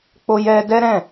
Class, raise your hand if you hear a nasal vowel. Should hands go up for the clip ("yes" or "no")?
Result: yes